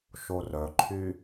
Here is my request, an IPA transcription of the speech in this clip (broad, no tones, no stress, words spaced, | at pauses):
ʃorœǃʰy